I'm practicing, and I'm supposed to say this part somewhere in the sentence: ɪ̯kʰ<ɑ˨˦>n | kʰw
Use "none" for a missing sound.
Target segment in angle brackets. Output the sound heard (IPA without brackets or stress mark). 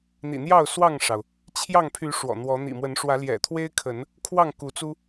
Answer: ə˨˦